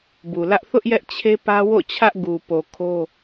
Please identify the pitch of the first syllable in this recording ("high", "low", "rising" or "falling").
low